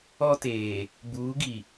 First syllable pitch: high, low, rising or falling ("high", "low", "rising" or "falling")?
high